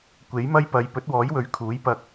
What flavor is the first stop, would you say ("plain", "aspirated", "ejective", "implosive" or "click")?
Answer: plain